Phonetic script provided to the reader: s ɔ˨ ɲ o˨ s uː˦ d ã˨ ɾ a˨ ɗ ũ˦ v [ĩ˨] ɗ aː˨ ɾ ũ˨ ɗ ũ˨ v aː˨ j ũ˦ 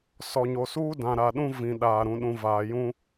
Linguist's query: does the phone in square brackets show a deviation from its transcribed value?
no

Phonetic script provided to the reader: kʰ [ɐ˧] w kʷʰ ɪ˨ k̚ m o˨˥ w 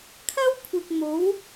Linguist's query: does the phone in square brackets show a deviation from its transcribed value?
yes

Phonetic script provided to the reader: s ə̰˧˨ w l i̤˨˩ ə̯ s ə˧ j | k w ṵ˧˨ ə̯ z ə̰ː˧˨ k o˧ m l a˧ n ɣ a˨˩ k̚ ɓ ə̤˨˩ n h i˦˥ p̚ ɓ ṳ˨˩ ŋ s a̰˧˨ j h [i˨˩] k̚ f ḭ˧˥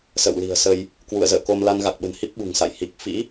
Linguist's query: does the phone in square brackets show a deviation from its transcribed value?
no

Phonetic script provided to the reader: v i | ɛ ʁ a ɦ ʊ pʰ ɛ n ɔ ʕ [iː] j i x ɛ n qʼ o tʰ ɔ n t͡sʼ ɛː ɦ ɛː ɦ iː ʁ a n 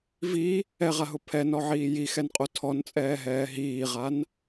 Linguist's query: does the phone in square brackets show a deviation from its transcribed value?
no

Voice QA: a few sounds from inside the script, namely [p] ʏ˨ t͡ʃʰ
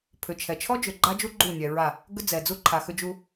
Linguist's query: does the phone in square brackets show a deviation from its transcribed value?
yes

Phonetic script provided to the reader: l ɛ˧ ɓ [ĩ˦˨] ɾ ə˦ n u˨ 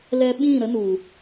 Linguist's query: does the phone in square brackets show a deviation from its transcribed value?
no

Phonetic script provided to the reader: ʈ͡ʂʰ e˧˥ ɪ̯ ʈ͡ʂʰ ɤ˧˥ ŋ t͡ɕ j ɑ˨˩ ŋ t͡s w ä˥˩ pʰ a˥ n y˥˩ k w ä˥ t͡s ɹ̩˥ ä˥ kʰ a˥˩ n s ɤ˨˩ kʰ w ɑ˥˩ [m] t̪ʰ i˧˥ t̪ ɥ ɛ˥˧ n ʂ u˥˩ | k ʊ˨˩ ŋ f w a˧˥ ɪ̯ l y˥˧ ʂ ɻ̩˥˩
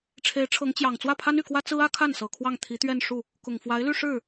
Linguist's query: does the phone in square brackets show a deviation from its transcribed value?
yes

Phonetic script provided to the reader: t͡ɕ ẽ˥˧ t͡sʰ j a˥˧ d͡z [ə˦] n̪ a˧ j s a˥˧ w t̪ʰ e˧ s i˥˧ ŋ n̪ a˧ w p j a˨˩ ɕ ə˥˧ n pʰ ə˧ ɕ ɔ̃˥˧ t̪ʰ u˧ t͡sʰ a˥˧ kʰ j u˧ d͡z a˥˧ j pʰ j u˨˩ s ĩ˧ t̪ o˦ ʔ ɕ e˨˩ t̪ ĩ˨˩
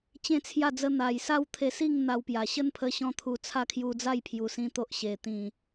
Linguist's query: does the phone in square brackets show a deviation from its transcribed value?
no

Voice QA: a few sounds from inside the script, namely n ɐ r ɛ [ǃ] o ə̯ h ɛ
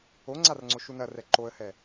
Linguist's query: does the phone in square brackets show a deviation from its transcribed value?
no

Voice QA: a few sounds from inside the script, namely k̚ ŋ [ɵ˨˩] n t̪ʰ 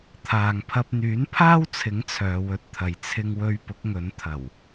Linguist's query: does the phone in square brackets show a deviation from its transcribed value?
yes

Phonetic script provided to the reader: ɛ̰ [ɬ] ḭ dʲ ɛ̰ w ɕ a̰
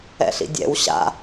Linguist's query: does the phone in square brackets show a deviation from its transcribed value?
no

